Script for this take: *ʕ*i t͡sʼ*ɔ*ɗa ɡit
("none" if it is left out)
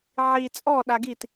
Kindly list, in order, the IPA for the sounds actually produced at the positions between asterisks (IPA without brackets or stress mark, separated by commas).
ʕ, ɔ